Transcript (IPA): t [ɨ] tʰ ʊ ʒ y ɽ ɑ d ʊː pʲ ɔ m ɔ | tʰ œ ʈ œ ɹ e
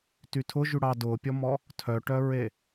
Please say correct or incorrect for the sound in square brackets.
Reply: incorrect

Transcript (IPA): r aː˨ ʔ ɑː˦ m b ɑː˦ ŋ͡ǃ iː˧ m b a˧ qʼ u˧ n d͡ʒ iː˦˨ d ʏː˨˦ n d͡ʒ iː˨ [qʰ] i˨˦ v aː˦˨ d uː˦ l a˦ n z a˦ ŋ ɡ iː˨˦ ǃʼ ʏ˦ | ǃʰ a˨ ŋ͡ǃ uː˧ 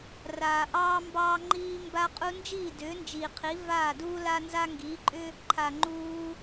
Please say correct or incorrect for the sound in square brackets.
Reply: correct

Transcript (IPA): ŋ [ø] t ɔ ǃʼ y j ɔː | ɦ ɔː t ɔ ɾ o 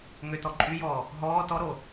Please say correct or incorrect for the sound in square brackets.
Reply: correct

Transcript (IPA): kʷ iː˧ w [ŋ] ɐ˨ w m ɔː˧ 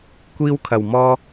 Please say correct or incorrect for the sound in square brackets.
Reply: incorrect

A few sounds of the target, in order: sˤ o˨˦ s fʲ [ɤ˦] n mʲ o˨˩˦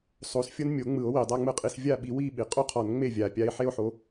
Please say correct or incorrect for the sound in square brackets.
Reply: correct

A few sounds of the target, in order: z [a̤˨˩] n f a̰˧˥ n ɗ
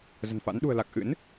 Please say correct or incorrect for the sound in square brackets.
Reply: incorrect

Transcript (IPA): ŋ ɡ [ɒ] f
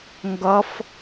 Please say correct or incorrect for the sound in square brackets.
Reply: incorrect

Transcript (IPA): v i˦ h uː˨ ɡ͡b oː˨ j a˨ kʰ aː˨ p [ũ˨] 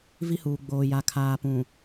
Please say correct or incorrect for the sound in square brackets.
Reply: correct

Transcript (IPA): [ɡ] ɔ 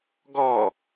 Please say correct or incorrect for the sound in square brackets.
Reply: correct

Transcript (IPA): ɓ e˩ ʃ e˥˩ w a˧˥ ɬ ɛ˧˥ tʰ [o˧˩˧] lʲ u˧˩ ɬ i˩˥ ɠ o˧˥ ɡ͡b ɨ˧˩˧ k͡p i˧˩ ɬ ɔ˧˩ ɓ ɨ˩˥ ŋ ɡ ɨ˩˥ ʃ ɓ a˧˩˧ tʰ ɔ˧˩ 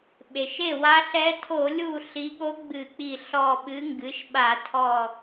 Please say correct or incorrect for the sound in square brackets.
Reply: correct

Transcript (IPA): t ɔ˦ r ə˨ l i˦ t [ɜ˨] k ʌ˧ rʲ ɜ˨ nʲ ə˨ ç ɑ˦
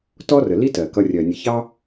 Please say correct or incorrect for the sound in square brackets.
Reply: correct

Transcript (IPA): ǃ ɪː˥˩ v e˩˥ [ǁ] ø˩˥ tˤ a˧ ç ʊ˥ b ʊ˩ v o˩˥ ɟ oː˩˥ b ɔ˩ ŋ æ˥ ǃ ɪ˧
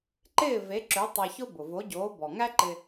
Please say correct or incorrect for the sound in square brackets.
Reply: correct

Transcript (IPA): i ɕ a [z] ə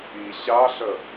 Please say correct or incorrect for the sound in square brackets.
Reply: incorrect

